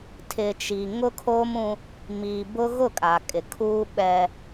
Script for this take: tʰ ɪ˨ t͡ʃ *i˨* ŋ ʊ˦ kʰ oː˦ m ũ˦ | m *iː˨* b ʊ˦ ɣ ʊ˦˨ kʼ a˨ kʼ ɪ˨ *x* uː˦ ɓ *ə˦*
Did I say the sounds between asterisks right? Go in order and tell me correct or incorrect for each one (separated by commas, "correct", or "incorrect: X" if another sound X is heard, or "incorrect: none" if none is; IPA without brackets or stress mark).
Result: correct, correct, incorrect: kʰ, incorrect: ɛ˦